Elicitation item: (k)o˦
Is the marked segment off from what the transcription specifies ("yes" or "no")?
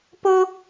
yes